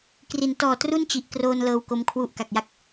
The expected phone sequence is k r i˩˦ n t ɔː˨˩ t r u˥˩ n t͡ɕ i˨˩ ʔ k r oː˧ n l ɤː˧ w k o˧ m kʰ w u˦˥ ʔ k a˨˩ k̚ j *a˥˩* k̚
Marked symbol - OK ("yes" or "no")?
yes